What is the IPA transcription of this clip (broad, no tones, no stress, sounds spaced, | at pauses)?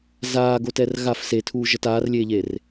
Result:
z aː ɡ o t ɛ r ɣ a f s e tʰ uː ʒ ʌ t aː r lʲ eː ʎ e r